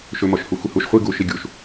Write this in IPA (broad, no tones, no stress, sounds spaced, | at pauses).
ʃ ɵ m ɔ ʃ h u xʷ i h u ʃ χʷ i ɡ u ʃ i ɡʲ u ʃ